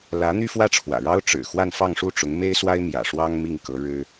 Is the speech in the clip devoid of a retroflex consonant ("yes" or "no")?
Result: no